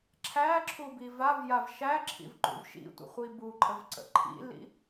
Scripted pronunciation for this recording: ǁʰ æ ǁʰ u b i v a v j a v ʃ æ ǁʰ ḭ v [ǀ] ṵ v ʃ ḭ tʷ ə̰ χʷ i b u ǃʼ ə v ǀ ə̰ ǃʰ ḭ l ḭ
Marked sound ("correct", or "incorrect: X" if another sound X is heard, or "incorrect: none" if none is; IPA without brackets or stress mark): incorrect: ǃ